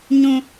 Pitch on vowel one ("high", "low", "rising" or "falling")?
high